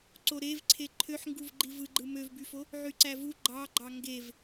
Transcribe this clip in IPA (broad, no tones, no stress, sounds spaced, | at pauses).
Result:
ǀ o ɾ e v ǀʰ e ǃʰ ø ħ ŋ ɡ u v ɡ͡ǃ i v ɯ ɡ͡ǃ ɯ m ø v b y f o | ʕ y ǀ æ v u ɡ͡ǃ ɑ ɡ͡ǃ ɑ ŋ ɡ e v